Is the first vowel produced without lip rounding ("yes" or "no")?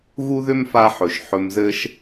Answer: no